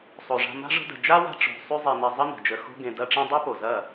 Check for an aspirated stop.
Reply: absent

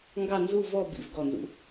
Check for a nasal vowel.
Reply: absent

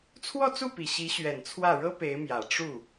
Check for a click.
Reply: absent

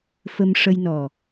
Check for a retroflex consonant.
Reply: present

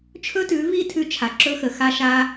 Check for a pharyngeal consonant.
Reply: absent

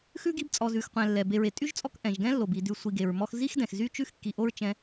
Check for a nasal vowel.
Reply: present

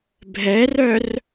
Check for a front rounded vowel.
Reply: present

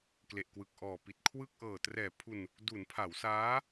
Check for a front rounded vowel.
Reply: absent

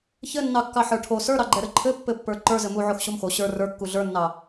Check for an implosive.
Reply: absent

